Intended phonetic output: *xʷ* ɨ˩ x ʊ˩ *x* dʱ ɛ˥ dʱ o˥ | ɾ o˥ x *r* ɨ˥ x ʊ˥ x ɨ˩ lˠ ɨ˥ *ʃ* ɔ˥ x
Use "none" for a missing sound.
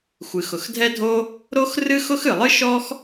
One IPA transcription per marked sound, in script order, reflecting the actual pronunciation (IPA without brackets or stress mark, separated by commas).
xʷ, x, r, ʃ